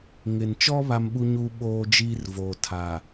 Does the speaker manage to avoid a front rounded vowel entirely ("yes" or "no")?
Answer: yes